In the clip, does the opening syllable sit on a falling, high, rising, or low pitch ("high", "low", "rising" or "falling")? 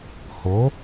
rising